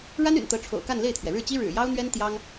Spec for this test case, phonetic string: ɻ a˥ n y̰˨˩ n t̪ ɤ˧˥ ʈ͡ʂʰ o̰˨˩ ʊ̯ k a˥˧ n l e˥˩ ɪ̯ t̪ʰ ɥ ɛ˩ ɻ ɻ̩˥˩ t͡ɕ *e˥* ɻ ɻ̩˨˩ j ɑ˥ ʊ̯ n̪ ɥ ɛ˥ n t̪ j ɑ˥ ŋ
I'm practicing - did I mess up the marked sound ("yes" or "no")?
yes